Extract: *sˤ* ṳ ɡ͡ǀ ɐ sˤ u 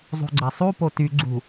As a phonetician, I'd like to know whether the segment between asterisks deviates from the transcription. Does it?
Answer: yes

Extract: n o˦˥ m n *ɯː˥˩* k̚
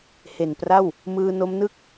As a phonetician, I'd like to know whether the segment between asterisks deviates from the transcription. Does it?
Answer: yes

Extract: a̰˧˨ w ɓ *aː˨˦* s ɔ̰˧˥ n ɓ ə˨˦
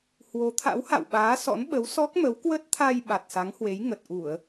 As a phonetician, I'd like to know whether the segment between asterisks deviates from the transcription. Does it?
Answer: no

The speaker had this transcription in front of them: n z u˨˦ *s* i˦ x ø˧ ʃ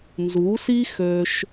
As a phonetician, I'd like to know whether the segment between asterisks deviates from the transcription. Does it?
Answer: no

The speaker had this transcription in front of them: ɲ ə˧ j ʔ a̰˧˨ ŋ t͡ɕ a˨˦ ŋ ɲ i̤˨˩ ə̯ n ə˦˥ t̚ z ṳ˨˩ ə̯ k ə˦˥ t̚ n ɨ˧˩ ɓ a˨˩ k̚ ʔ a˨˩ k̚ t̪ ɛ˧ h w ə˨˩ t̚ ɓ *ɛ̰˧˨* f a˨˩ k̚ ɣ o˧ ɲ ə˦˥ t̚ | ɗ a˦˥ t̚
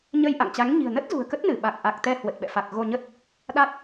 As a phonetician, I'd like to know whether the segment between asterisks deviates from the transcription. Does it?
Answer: no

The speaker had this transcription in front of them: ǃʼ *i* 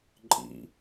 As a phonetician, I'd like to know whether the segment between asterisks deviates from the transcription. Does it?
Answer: yes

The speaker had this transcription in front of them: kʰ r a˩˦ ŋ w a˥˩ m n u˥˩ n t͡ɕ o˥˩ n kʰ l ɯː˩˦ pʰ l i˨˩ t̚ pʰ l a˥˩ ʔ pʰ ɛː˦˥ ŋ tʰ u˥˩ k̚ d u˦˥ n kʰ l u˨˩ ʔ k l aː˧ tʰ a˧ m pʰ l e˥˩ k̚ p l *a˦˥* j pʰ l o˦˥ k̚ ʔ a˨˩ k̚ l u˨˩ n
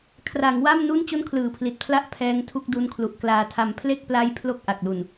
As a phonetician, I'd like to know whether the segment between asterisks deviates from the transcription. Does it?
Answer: no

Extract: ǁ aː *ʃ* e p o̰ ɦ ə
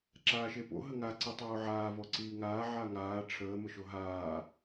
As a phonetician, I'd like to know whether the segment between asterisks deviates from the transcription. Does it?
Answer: no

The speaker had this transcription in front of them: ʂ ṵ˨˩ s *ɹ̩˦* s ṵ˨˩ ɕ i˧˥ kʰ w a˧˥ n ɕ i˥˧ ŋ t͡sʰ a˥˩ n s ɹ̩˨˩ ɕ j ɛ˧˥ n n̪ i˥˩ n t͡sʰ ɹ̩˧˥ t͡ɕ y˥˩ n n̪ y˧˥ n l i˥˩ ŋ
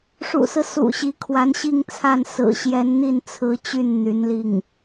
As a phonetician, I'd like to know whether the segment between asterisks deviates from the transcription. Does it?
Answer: no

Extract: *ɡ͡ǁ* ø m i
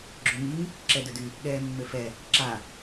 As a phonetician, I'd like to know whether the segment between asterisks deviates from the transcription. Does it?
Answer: no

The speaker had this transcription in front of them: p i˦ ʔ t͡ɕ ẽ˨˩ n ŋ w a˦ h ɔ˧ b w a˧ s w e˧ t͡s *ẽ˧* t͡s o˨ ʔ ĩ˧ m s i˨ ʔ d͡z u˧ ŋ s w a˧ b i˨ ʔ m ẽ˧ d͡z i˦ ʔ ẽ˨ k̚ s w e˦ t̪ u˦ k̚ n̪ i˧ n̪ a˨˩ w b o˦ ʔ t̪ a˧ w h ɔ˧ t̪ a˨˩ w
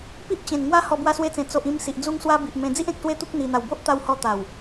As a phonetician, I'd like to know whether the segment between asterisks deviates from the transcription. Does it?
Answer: yes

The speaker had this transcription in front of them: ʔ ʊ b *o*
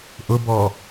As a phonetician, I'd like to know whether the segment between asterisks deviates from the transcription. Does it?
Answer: yes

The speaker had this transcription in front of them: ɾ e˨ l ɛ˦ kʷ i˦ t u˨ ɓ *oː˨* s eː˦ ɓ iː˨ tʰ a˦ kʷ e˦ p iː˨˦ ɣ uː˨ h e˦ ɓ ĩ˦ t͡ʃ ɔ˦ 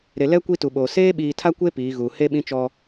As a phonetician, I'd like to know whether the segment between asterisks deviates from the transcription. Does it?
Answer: no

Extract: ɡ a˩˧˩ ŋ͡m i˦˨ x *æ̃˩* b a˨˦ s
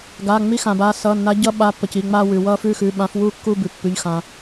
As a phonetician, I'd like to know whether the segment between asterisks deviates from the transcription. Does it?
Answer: yes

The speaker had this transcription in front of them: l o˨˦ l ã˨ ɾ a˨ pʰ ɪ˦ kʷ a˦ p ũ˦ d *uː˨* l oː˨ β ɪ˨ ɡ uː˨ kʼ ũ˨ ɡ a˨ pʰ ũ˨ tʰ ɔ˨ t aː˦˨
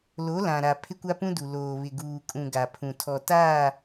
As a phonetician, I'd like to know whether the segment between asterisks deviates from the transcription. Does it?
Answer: yes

